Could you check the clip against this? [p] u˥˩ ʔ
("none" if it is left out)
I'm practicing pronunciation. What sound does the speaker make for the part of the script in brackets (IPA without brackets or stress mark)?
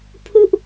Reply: pʰ